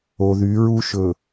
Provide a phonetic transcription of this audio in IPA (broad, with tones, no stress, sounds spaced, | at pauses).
o˨ ð y˨˦ ɹ u˦ ʃ ɵ˨